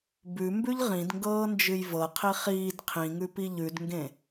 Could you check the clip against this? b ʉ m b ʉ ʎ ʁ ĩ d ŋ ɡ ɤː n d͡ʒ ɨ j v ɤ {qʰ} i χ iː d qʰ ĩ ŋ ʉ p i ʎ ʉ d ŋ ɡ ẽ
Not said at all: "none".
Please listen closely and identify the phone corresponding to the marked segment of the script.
qʰ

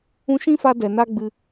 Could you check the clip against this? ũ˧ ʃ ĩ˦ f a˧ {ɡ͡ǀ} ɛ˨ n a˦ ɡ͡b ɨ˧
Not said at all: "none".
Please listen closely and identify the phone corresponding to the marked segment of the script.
d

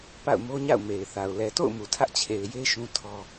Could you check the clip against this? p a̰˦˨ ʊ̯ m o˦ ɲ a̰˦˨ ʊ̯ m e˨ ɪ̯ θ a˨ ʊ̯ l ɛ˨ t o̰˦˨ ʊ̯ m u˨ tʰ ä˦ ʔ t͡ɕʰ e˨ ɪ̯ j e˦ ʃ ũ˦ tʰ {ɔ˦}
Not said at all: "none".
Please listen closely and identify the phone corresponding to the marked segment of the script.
ɔ˦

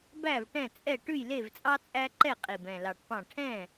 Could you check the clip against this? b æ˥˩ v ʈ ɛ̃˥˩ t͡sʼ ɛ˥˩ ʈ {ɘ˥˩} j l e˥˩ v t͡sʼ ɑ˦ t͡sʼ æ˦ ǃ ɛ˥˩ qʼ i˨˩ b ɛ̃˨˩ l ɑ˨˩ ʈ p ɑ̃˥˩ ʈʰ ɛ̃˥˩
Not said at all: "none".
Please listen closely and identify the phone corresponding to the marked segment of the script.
ʉ˥˩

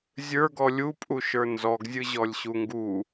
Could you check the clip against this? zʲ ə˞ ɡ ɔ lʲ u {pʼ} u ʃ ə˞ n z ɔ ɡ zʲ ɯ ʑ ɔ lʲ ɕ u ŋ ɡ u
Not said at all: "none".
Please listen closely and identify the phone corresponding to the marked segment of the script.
pʼ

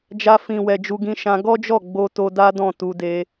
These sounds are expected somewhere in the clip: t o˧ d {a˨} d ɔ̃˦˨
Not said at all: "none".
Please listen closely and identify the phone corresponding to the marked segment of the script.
a˦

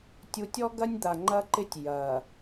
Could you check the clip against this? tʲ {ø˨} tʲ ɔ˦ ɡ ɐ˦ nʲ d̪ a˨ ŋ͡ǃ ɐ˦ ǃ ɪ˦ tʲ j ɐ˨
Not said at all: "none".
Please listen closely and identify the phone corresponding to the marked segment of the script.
u˨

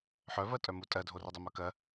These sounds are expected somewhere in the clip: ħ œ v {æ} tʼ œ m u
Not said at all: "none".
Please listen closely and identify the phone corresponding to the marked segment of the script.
ɜ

